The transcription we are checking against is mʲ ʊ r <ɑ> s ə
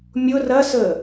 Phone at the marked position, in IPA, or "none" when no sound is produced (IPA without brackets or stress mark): ɐ